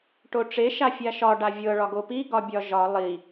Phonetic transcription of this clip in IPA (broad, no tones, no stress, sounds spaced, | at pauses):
ʈ o ʈ͡ʂ e ʃ a fʲ a ʃ ɒ ɖ a vʲ ɤ ɭ ɒ ɡ o p i ɡ ɒ bʲ ɒ ʒ ɒ lˠ i